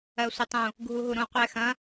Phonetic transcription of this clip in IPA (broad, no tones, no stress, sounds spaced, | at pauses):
ɜ sʷ ɪ tˤ ũ | ɡʱ u ɦ u ɾ ũ qʷ ɛ x ɐ̃